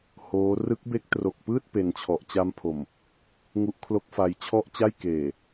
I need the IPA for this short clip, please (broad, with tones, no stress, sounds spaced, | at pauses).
h oː˦˥ r ɯ˦˥ k̚ b e˦˥ k̚ t r o˨˩ k̚ p ɯː˥˩ t̚ p e˧ n t͡ɕʰ ɔ˨˩ ʔ t͡ɕ a˦˥ m pʰ o˨˩ m | ŋ u˦˥ ʔ kʰ l o˦˥ k̚ f a˧ j t͡ɕʰ ɔ˥˩ ʔ t͡ɕ a˥˩ j k eː˨˩